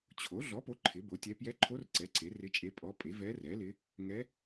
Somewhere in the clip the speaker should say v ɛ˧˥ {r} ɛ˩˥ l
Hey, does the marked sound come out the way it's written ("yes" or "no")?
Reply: yes